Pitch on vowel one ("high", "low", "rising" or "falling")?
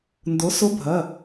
rising